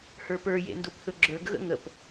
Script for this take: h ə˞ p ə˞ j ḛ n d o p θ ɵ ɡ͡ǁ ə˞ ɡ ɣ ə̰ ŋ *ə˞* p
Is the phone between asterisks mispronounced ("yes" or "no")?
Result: yes